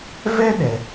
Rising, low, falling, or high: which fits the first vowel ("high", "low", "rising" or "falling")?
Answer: high